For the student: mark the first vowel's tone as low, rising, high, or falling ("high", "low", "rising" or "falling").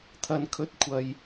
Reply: low